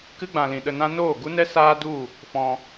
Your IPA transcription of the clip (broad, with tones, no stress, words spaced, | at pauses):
kɨ˦ɡ͡bã˨lĩ˨ ɗə˧nã˦ noː˦˨ɡu˦nɛ˦ saː˦du˦˨ | fɔ̃˧